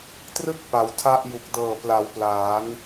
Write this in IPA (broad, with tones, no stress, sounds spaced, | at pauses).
t r ɯ˥˩ k̚ p a˩˦ w tʰ a˥˩ ʔ j u˨˩ k̚ d ɤː˨˩ p l a˩˦ w p l aː˩˦ n